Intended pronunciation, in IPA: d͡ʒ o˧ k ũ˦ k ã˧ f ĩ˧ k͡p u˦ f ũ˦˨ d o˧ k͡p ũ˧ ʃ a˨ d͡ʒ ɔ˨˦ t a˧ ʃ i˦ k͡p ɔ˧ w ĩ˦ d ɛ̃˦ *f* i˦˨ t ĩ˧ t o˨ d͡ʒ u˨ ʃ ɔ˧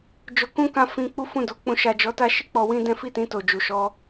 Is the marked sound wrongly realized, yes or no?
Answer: no